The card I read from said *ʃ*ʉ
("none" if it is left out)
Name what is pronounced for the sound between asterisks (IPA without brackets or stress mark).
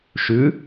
ʃ